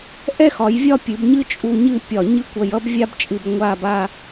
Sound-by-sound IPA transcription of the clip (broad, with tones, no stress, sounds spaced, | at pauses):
ʔ ɛ˥ x ɒ˩˧ j vʲ ɒ˥˧ pʲ ɨ˩˧ b ɲ ɨ˥ t͡ʃʼ u˧ ɲ ɨ˥˧ pʲ ɒ˧˩ ɲ ɨ˥ kʷ ʌ˧ j ʌ˥ b vʲ a˥ b t͡ʃʼ ɨ˧ b ŋʷ a˥˧ b a˥˧